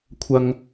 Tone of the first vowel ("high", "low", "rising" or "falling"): low